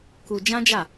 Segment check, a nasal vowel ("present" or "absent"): present